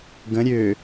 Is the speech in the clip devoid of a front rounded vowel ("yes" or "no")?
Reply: no